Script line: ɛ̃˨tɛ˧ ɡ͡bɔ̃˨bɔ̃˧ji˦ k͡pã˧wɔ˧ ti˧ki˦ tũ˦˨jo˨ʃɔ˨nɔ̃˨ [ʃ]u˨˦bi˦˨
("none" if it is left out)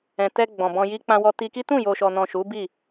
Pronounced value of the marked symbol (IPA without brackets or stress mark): ʃ